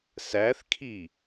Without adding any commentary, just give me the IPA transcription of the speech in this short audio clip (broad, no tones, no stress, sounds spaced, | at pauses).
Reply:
s æ θ kʰ i